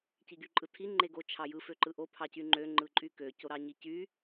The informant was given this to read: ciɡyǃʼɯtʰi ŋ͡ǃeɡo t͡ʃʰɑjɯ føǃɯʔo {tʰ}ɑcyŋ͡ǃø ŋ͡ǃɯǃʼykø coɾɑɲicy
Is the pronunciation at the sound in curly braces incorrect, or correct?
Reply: incorrect: pʰ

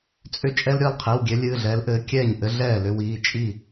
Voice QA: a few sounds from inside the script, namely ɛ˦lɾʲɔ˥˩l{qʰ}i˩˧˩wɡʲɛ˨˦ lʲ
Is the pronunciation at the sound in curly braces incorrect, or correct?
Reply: correct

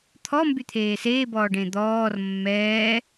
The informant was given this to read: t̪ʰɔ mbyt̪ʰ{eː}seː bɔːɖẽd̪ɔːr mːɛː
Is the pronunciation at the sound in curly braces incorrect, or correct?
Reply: correct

